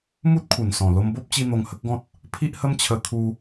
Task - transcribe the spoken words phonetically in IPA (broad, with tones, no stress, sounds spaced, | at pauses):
m u˦ t̚ kʰ u˨˩ n s ɔ̃˨˩ l o˧ m b o˦ p̚ t͡ɕ i˧ n̪ o˧ ŋ h ə˦ k̚ ɡ ɔ̃˦ t̚ | pʰ i˦ ʔ h ə˦ m t͡ɕʰ ə˧ t̪ʰ u˧